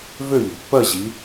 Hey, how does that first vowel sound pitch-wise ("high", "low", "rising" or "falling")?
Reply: falling